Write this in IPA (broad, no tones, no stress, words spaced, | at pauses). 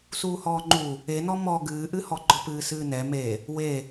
suːhɔːŋ͡ǃu | enɔ mɔ ɡɨːʔɨhɔ ɡ͡ǃɔpɨːsɨːnɛ me | we